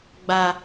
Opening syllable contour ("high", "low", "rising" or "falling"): low